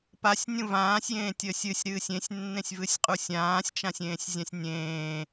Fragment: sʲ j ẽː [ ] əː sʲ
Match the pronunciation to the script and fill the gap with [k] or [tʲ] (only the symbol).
tʲ